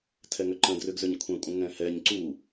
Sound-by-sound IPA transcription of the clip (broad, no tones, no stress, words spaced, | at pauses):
tʰɛŋʏǃə̃ drʏɡzʏɲkʷʰɛ̃kʷʼə̃ ŋɛ̃hɛɲ ǀu